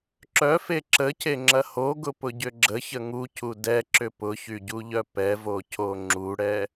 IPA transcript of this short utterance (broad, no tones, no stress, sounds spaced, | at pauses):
ǁ œ f e ǁ ə c e ŋ͡ǁ ɐ h o ɡ ʊ p ʊ ɟ ʏ ɡ͡ǁ ə ç ə ŋ u c u d ɛ ǁ ʏ p ʊ ç y ɟ u ʎ œ p ɛ v o c o ŋ͡ǁ u ɽ ɛ